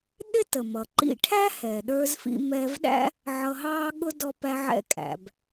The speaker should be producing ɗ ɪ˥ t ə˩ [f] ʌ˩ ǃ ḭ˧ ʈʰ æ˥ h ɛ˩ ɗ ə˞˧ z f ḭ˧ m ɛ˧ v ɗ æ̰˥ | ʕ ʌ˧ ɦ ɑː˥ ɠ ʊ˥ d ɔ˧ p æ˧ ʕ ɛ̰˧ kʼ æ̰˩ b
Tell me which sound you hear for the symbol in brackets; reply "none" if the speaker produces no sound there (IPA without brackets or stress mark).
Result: m